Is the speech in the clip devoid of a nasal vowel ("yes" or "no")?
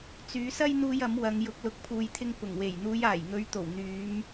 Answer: yes